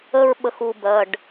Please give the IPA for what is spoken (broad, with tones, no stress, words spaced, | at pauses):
ə˦ɹ ɓə˦xu˦bɜ˩˧˩ɖ